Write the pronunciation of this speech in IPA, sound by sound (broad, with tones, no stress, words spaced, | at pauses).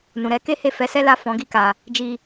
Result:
nũ˨ɾɛ˨˦ke˦ he˦˨fɛ˨˦sɛ˦la˦˨ fɔ̃˨˦ɡi˦˨ ka˧ | d͡ʒi˧